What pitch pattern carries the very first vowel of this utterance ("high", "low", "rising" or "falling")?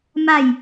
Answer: falling